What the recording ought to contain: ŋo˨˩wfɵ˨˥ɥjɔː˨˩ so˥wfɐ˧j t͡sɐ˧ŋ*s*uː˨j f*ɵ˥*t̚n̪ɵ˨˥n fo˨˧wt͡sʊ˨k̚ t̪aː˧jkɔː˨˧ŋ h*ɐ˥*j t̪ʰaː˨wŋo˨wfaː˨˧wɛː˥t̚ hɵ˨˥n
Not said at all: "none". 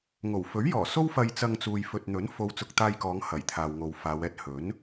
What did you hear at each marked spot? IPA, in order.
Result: t͡s, ɵ˨, ɐ˨˩

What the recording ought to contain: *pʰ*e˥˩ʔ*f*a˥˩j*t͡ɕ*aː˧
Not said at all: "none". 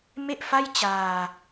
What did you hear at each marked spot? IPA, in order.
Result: m, f, t͡ɕ

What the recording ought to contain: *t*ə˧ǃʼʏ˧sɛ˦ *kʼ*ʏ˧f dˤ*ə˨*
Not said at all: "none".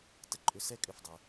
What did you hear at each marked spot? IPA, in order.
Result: t, kʼ, ə˨

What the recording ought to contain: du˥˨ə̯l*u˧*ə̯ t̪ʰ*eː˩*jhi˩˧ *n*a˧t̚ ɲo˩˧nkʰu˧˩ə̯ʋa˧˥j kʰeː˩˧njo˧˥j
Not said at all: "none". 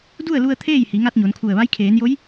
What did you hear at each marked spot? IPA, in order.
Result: u˧, eː˥˨, ŋ

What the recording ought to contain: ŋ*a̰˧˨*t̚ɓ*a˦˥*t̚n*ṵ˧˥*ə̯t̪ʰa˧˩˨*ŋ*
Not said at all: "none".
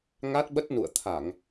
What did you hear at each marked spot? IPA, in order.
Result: a˦˥, ə˦˥, ṵ˧˨, ŋ

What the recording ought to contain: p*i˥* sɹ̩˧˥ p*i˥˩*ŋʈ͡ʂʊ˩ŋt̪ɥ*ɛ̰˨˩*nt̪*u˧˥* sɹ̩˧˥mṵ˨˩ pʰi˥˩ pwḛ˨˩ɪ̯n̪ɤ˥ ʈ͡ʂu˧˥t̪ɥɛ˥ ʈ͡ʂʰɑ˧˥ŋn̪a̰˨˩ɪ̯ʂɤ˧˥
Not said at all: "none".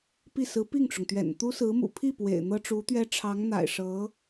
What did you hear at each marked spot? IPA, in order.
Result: i˥˩, i˥˩, ɛ̰˨˩, u˥

